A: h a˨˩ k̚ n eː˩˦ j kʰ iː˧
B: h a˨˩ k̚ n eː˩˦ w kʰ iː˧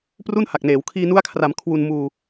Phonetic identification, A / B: B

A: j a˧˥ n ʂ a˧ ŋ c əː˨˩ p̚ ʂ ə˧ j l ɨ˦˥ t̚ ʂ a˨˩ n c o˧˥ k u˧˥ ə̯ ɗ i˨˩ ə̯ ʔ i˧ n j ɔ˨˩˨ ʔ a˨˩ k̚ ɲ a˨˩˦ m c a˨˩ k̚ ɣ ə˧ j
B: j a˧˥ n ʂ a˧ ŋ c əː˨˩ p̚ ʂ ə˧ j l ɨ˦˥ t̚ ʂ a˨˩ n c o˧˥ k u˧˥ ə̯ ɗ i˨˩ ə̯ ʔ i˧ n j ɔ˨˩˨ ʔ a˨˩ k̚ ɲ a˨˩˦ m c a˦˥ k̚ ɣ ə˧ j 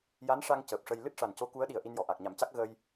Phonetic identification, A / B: B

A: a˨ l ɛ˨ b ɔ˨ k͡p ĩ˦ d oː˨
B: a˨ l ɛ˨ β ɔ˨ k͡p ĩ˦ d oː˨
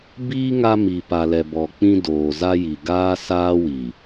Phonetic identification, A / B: A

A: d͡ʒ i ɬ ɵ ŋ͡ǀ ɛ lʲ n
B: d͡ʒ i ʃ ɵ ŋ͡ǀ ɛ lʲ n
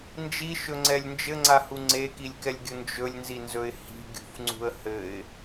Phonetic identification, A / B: B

